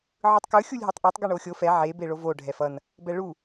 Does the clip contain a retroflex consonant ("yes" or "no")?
yes